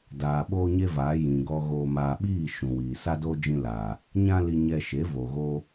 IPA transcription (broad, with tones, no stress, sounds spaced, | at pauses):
d aː˨ ɓ oː˦ ɲ e˦ v aː˨˦ j ĩ˨ ɡ ɔ˧ ɣ oː˨ m aː˨ ɓ iː˦˨ ʃ ũ˨ w iː˨ s a˦ d oː˦ d͡ʒ ĩ˧ l a˨ | ɲ ã˦ l i˧ ɲ ɛ˧ ʃ e˨˦ v o˨ ɣ o˧